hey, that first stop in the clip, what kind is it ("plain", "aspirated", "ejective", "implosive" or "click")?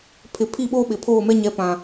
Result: aspirated